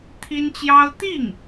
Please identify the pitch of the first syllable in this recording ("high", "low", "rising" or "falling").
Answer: high